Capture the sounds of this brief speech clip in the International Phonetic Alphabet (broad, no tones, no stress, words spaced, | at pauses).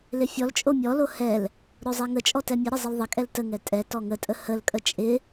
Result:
lɪfʲɔlt͡ʃʼo mʲɔlo hɛl | ɾozˤɛŋət͡ʃʼɔ tɛmʲəɾə zˤɪlðˤəkʼɛl təŋɛ tʼɛ tɔŋətʼə həlkʼə t͡ʃʼɪ